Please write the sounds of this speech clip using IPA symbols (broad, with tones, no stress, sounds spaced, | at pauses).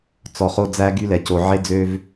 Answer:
t͡s ɔ˨ χ o˦ d͡z æ˦ ɡ y˦ l ɛ˨ c o˨ ʕ e˦ d͡z ø˦ v